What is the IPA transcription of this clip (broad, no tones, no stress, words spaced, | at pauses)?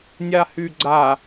nʲahyɡ͡ǀa